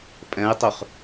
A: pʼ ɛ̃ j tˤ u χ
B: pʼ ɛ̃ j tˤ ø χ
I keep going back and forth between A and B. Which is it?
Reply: B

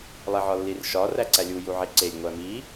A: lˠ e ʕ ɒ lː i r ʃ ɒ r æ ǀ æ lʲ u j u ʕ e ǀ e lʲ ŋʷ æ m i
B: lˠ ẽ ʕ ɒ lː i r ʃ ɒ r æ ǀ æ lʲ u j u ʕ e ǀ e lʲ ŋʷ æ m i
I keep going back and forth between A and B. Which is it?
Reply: A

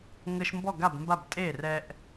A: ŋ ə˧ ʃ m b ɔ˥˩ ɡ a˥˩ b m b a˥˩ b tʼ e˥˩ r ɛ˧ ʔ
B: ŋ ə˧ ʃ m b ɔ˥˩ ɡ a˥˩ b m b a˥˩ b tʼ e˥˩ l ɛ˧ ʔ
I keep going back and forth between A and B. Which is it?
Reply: A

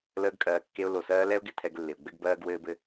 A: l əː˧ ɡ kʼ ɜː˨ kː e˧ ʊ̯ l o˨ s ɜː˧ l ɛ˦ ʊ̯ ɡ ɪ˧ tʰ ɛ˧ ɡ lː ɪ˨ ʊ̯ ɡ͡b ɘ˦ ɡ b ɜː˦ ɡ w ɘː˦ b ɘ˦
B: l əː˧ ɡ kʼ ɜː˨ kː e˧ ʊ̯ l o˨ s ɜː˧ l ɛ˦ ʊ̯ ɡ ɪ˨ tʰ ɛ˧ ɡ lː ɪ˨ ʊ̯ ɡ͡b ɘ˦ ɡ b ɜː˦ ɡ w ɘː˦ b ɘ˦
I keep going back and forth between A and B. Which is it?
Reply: B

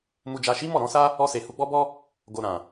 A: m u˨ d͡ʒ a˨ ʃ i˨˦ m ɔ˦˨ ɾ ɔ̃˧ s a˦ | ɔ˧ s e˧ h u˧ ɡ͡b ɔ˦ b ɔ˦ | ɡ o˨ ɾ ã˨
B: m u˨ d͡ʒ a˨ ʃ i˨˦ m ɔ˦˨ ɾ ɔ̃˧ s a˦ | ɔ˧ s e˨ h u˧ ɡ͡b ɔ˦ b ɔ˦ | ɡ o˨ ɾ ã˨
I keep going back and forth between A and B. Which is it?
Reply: B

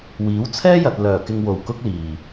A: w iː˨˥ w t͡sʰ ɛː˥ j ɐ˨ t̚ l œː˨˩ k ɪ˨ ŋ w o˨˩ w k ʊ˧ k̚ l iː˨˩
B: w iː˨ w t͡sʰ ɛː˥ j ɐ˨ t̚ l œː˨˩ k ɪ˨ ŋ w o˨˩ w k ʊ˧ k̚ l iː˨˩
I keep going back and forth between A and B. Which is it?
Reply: A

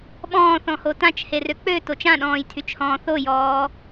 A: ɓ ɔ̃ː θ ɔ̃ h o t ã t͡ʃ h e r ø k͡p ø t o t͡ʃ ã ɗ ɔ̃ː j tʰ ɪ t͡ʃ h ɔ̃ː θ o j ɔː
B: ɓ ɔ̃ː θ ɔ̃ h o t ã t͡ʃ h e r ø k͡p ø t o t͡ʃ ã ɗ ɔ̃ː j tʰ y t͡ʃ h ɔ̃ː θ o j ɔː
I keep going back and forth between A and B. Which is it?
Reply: B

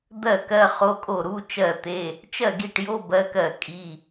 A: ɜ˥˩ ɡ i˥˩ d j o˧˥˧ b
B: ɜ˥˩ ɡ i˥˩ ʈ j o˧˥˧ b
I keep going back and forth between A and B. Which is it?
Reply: B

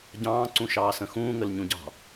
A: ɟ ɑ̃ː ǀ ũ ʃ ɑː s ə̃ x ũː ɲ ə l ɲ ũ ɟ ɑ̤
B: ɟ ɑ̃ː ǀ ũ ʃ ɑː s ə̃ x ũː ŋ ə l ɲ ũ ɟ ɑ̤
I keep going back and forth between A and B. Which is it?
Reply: B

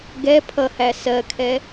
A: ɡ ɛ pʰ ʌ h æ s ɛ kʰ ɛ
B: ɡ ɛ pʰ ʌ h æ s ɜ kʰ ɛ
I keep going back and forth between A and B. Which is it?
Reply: B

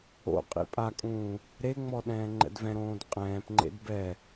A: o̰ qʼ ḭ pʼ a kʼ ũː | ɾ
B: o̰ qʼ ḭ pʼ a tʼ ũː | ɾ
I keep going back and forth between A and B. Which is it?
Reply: A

